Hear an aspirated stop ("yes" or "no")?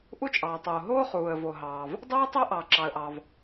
no